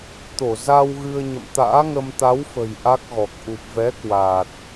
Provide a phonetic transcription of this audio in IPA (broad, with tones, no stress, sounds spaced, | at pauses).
t̪ o˧˩ z a˧ w ɣ ɨ˧ ə̯ ɲ ə̰˧˨ m t̪ a̰ː˧˥ ŋ ə˧ m t̪ a˨˦ w f ə̤˨˩ j ʔ a˦˥ k̚ ɣ ɔ˨˩ k̚ ʔ u˨˩ p̚ v ɛ˨˦ k w aː˨˩ t̚